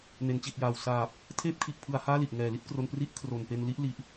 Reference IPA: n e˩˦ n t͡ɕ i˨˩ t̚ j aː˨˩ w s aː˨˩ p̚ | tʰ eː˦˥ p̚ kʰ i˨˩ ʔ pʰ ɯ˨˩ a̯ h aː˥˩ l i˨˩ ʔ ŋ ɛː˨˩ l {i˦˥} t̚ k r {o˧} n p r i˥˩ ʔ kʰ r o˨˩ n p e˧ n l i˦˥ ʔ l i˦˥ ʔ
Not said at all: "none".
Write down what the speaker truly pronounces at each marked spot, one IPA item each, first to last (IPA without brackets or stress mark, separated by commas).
i˥˩, o˧